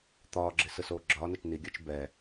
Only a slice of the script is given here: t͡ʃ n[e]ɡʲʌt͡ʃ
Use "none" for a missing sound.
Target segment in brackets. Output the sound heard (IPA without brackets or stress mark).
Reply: i